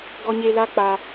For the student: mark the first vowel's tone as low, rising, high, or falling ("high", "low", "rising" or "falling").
high